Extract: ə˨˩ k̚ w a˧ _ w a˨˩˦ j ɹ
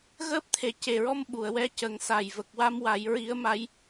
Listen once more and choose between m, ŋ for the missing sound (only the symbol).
m